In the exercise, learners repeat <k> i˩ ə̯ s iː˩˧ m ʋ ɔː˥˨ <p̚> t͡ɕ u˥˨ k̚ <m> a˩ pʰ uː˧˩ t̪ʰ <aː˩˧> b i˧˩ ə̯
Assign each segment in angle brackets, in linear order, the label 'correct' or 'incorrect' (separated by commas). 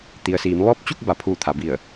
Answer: incorrect, correct, incorrect, incorrect